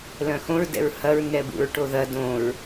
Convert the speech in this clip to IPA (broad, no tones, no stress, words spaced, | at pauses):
lœ̃xõɹ dɛ̰ɹhɐɹ nɛbṵɹʈoðɐ dõɹ